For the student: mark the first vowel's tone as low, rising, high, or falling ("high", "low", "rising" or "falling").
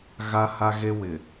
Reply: high